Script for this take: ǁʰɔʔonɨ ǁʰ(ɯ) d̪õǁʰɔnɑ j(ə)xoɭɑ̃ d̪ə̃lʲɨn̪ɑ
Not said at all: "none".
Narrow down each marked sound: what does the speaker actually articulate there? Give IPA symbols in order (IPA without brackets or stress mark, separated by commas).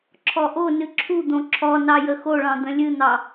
u, ə